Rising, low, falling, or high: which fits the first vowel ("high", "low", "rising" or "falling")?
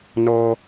high